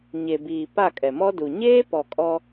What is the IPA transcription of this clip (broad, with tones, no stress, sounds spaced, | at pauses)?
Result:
ɲ e˨ b iː˨ p a˦˨ kʼ ɛ˨ m ɔ˦ d u˨ ɲ eː˦ p ɔ˨ kʼ ɔ˦